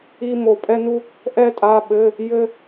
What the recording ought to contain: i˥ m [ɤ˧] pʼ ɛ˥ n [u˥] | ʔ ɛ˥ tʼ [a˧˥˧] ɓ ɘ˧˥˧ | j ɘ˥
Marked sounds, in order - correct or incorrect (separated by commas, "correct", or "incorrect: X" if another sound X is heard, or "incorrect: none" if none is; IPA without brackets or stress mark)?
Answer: incorrect: o˧, correct, correct